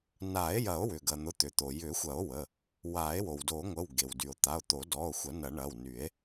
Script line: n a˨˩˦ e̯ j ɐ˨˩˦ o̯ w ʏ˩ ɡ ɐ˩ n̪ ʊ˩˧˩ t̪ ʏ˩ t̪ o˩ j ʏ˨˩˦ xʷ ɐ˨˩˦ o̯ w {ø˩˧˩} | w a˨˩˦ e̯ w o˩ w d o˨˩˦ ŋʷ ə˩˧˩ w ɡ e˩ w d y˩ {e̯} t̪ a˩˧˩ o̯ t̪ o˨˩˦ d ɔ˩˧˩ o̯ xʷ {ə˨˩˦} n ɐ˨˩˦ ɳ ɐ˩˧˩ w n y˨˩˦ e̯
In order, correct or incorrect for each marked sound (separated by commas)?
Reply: incorrect, incorrect, incorrect